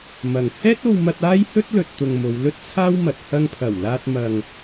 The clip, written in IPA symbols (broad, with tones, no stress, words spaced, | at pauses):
mɐ˨ŋ hɛː˥t̚o˧wmɐ˧t̚ aː˥jhɵ˥t̚lɵ˨t̚t̪ʊ˨ŋ mo˨˧wlɵ˥t̚t͡sʰaː˥wmɐ˨t̚ hɐ˧ŋpʰɐ˨˩wlaː˧t̚ mɐ˨ŋ